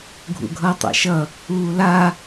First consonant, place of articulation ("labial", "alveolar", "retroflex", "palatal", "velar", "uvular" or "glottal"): velar